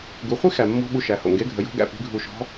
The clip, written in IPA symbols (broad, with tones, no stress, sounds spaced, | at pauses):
ɡ u˩˧ χʷ i˥ x æ˩ mː ɔ̤˧ ɓ u˧ ʃ æ˩˧ h o̰˩ ŋ ɡ e˧˥ ɡʱ ə˩˧ j o̤˧˥ ɡ æ̰˧ p i̤˧˥ ɡʱ u˧ ʃ ɔ̤˧˥